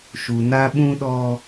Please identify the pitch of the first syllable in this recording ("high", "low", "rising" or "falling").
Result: low